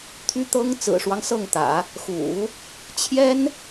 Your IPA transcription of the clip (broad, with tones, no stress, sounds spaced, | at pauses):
t̪ʰ y˥ t̪ ɤ˥ ŋ t͡s ɹ̩˨˩ ʂ w ɑ˦ ŋ s ɤ˥˩ ŋ t̪ ä̰˨˩˦ | x ṵ˨˩˦ | t͡ɕʰ j ɛ˥ n